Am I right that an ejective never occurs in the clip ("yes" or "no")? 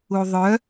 yes